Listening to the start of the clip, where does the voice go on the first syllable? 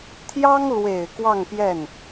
high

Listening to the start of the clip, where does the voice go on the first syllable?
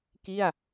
falling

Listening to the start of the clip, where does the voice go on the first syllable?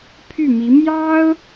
falling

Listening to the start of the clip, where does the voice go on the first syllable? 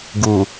low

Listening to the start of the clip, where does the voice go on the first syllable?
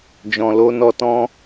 low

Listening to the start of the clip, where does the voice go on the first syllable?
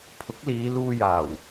rising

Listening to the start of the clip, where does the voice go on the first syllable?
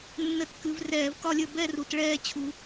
rising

